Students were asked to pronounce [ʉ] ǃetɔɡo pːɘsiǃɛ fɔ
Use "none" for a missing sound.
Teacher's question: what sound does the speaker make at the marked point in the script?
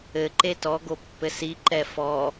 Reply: ɘ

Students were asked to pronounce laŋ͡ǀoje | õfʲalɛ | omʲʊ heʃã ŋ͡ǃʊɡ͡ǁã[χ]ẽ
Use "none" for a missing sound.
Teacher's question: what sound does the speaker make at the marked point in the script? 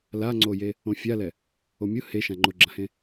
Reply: h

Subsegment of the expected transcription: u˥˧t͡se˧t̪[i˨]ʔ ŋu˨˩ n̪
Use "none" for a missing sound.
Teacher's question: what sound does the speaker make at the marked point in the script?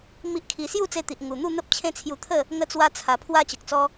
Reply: i˨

